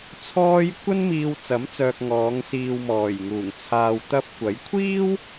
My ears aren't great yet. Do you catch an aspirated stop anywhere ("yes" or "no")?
yes